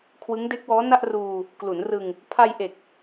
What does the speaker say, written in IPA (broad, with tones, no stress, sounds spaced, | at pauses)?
kʰ w ɯ˦˥ ŋ d e˦˥ k̚ w ɔː˦˥ n a˥˩ ʔ r uː˧ | k l u˩˦ n r ɯ˧ ŋ | pʰ a˧ j ʔ e˨˩ k̚